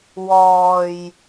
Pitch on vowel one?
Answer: low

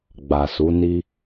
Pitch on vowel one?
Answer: low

